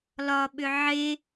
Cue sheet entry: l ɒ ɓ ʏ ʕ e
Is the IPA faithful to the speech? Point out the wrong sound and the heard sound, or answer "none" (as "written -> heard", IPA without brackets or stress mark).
none